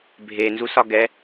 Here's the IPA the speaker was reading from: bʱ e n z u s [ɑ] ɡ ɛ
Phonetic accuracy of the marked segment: incorrect: ɒ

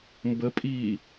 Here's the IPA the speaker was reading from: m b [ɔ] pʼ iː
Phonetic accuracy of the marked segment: incorrect: ə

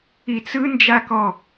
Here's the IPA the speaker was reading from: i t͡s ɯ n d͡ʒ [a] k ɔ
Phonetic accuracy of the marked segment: correct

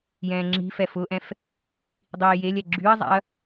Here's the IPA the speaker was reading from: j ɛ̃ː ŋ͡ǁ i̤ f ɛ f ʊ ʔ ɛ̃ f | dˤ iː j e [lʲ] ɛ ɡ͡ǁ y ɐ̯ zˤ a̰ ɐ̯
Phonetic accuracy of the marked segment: correct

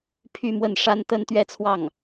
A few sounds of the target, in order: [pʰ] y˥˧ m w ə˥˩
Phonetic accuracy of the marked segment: correct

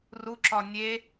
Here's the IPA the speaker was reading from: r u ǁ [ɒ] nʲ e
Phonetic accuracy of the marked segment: correct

